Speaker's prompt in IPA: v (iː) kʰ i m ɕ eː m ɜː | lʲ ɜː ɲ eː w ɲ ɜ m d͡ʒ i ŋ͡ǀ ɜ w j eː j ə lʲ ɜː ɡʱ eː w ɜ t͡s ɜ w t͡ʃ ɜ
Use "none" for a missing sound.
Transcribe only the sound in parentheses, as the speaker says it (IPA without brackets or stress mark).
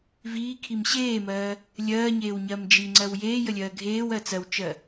iː